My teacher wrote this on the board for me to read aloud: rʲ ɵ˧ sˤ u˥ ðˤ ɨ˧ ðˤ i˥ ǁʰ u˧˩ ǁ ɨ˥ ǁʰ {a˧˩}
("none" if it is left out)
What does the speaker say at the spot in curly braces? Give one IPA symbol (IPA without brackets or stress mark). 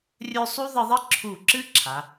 a˩˧